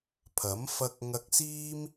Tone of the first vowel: rising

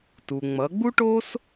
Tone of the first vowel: low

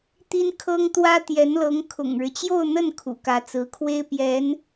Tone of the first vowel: high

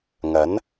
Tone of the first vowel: rising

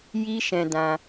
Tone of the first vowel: high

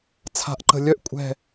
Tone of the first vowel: rising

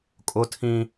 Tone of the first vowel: high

